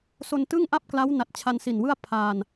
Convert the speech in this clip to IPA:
s o˧ n t ɯ˥˩ ŋ ʔ a˥˩ p̚ k l a˦˥ w n a˨˩ t̚ t͡ɕʰ a˧ n s i˨˩ n w ɯ˥˩ a̯ pʰ a˧ n

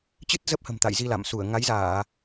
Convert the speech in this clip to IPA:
t͡ɕ ɨ˦˥ t̚ z ə˦˥ p̚ h ə̤˨˩ m t̪ a̰˧˨ j z i˧ l a̰˧˨ m s u˧˩ ə̯ ŋ a˨˦ j z aː˧˩˨

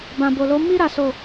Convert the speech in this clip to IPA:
b ã˨ b o˨ l o˨˦ m i˦ ɾ a˦ s o˦˨

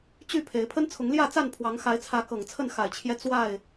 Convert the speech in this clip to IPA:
t͡ɕ y˥˨ pʰ e˨˦ ɪ̯ pʰ ə˦ n t͡sʰ ʊ˨˦ ŋ l j ä˥˨ t͡s a˥˨ n pʰ w ɑ˨˦ ŋ x a˨˦ ɪ̯ t͡sʰ ä˨˦ k ɤ˨˩ ŋ t͡sʰ ə˥˨ n x a˨˩ ɪ̯ t͡ɕʰ j ɛ˦ t͡s w a˥˨ ɪ̯

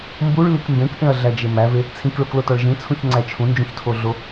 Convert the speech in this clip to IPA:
m b u ɭ l i k m b ẽ k ʔ ẽ ɐ̯ ɮ æ d͡ʒ e m æ v e | t͡sʰ ĩ k ɭ o k l o t ɒ ɭ ʒ ĩ t͡sʰ ũ ç ŋ͡ǀ æ t͡ʃʰ ũ n d͡ʒ ũ ç tʰ o ɮ o

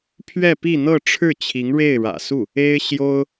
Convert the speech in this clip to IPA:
pʰ ɥ ɛ˥˧ p i˥˧ n̪ ɤ˥˧ ʈ͡ʂʰ ɻ̩˥˩ t͡ɕʰ i˧˥ ŋ ɻ e˥˩ ɪ̯ ɻ ä̰˨˩ s u˥˩ | e˥ ɪ̯ ɕ j o˥ ʊ̯

